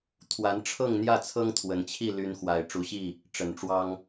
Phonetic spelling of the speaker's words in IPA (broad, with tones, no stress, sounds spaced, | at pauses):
t̪ʰ w a˨˦ n ʈ͡ʂʰ ɤ˥˨ ŋ n̪ j ä˥˨ t͡sʰ ɤ˦ ŋ t̪ʰ w ə˨˩ n t͡ɕʰ i˥˨ l y˦ n x w a˨˩ ɪ̯ ʈ͡ʂ u˨˦ ɕ i˥˨ | ʈ͡ʂ ə˨˩ n ʈ͡ʂ w ɑ˦ ŋ